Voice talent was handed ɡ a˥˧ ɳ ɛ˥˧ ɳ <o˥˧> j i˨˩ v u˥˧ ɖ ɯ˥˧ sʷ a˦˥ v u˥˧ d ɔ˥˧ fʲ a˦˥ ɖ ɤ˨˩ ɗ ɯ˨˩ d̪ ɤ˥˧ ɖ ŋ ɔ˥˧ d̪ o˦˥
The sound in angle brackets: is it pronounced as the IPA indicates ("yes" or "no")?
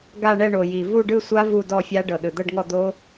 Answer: no